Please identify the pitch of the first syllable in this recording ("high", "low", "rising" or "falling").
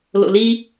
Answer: low